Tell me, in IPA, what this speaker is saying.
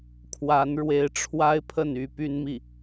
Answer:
kʰ w a˧˥ n ɻ w e˧˥ ɪ̯ ʈ͡ʂʰ w a˥ ɪ̯ pʰ ə˥˩ n y˧˥ p y˥ n m i˥˩

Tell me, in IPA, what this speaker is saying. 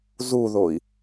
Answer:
z u ð o i̯

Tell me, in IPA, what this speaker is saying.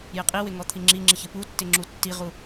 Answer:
j ɪ qʼ i w ɪ ŋ ɔ t̪ʰ i ŋ͡ǁ i ŋ͡ǁ ɪ ç ɪ p u tː ɪ ŋ͡ǁ u tː i ʁ u

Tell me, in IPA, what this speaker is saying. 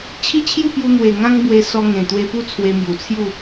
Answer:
t͡ɕʰ i˦ t͡ɕʰ j u˥˧ p j u˧ n̪ w e˨˩ ŋ ã˦ ŋ b w e˧ s ɔ˧ ŋ ẽ˨˩ t̪ w e˧ p u˥˧ t͡sʰ w e˧ m j u˨˩ t͡sʰ j u˥˧

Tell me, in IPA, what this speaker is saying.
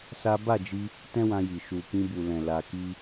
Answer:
s a˦ b a˦˨ d͡ʒ i˧ | t ɛ̃˦ w ã˧ j i˨ ʃ u˨ k ĩ˧ b u˨ l ɛ̃˨ l a˧ k i˦

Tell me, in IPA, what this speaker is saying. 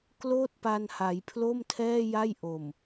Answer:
k l oː˥˩ t̚ p a˧ n h a˩˦ j pʰ l o˥˩ m tʰ ɛː˥˩ j a˥˩ j ʔ o˨˩ m

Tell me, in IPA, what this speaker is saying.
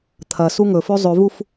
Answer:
t̪ʰ ɐ s u ŋ ɵ f ʉ zˤ ʉ v u f

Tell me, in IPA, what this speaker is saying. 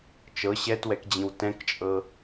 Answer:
t͡ʃ ɤ ɕ ɛ t w ɛ k d͡ʑ ĩ w t ɛ̃ k t͡ʃʼ ɤ

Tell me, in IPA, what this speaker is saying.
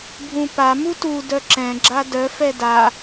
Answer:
bʱ ũ p a m u t u d œ ǁ ɛ̃ ɡ͡ǁ a d œ f ɛ d a

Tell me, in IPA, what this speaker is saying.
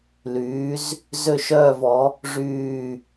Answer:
l yː˨˥ z | z ø˥˧ ʃ œː˥˧ v ɔ˨˥ | ʐ yː˥˧

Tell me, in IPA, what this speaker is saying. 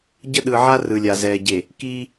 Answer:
ɟ ə˦ ɗ ɯ˨ ʕ a˦ r ɯ˨ lʲ a˨ z ɛː˨ ɟ e˨ | k iː˦

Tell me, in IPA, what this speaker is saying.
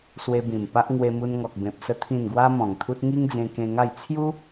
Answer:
s w e˧ b ĩ˨˩ m p a˦ ʔ ŋ w e˧ m u˧ n ŋ ɔ˨ k̚ b ẽ˨ p̚ s ə˧ t̪ʰ ĩ˨˩ n ɡ w a˧ m ɔ̃˨˩ ŋ t̪ʰ u˦ t̚ ŋ i˦ ŋ d͡z ẽ˧ k ẽ˧ ŋ a˥˧ j t͡sʰ j u˦

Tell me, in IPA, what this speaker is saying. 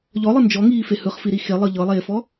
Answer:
ʎ ɔ lˠ ɯ n d͡ʒ ɔ ŋ iː f e h ɯ χ f i ɾ i x e lˠ ɤ ʎ ɤ lˠ eː f ɔ

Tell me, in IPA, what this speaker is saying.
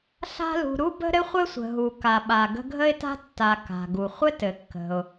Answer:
ɬ a̤˦ l ṳ˨ ɾ u˥ b ə̤˥ ɾ ɘ˥ χʷ ɘ˥ sʷ ə̤˩ ɦ u˩ k a˩ ɓ a˩ ɡ ə̤˥ ɡʱ ə˦ ɪ̯ t a̤˦ tː a˨ k a̤˩ ɡ u˩ χʷ ɘ˥ t ɘ˩ kː ə̤˩ ʊ̯

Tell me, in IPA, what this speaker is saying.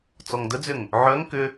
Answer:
t͡s ɔ ŋ d ə d͡z ʏ ŋ | ʕ œ ŋ k ʏ

